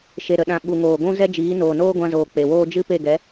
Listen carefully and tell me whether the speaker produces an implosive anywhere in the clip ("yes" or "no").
yes